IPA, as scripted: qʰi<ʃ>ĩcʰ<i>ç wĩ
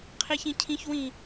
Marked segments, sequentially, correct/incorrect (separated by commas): incorrect, incorrect